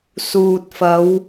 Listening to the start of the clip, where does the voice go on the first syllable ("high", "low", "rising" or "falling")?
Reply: low